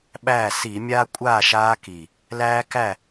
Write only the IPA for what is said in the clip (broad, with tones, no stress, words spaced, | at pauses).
ɓæː˥˨ si˧˩˧mʲaː˦kʷʼaː˥˨ ʃaː˦ki˨˩ | læː˦kæ˥˨